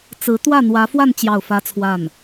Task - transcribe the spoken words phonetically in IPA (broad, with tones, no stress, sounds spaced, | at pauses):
t͡s ɹ̩˧˥ t̪ w ä˥˩ n̪ w ä˧˥ f w a˥˧ n t͡ɕ j ɑ˥˩ ʊ̯ f ä˥ t͡sʰ w a˥˩ n